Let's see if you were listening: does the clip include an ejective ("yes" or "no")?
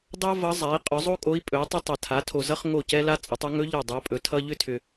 yes